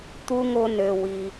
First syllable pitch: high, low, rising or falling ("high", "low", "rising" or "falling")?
high